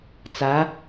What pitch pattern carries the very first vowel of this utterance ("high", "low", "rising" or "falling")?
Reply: rising